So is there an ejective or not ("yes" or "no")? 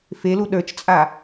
yes